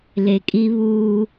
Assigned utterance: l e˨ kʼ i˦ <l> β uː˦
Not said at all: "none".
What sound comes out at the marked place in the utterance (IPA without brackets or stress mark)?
none